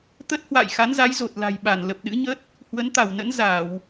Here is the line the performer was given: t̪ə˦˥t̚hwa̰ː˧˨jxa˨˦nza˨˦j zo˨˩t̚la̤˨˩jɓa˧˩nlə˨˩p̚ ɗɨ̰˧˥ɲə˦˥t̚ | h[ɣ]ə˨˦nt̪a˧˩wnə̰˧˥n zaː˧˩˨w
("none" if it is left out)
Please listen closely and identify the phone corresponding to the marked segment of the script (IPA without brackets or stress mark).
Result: w